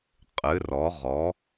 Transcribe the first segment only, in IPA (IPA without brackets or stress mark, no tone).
qʼ